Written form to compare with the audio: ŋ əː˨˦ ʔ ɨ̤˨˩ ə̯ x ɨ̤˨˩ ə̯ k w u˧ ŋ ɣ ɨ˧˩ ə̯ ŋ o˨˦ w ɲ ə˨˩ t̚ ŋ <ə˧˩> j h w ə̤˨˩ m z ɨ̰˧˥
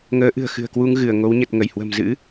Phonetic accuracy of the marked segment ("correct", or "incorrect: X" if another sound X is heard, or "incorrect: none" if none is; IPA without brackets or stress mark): correct